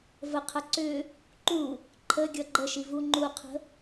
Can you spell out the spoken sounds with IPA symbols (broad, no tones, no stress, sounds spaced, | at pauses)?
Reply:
v ə qʰ ɐ ǀ ʏ | ǃ u | ǃʰ ə ɡʲ ʌ ɡ͡ǃ ə ʃ i v u ŋ͡ǃ u qʰ ə̤